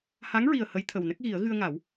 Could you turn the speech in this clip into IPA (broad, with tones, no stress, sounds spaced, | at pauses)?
h a˧˥ ŋ ɹ i˨˩ ə̯ h ə˧˥ j t̪ʰ ə˨˩ w n ə˦˥ k̚ ɣ i˨˩˦ ə̯ ɣ ɨ˧ ə̯ ŋ a˨˩˦ w